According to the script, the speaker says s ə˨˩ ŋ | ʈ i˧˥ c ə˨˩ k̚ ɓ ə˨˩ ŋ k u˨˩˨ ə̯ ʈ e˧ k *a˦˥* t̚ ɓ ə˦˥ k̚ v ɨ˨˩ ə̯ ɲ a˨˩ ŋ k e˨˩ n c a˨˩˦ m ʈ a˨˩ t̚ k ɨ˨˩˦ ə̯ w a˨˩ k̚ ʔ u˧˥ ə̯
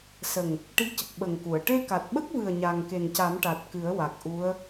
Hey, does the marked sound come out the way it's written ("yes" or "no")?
no